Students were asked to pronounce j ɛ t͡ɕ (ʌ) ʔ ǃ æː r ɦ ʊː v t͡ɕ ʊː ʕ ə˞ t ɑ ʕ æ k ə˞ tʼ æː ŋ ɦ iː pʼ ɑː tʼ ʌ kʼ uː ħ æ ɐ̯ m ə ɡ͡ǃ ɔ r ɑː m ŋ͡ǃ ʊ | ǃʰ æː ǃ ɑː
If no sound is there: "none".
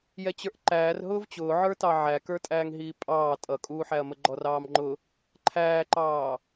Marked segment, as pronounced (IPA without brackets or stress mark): ə˞